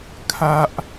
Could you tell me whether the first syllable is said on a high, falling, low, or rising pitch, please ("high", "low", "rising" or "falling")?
high